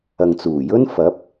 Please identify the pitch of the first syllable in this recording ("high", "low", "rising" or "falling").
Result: low